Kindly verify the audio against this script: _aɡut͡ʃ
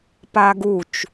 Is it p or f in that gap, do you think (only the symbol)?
p